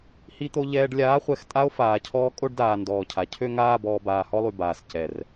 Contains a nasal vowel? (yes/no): no